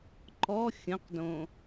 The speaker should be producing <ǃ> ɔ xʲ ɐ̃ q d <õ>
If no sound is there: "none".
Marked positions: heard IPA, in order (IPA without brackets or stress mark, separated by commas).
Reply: ǃ, õ